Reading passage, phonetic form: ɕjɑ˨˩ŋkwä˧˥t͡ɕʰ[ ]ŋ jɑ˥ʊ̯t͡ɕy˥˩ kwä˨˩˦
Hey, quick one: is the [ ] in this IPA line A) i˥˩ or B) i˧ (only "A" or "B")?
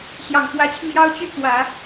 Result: B